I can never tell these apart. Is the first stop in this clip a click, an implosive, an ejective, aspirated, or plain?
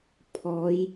aspirated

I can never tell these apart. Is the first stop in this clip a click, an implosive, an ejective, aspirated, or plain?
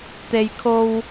plain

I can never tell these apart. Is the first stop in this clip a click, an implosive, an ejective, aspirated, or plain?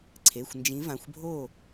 click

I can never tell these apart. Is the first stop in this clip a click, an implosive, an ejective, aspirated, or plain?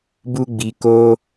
plain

